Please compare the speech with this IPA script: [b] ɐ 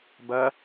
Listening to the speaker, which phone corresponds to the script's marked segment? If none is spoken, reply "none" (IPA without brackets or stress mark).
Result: b